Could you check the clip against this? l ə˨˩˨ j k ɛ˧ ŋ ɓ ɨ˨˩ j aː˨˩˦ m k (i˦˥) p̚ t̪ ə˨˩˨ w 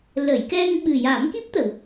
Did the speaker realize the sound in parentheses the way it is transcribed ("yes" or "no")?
yes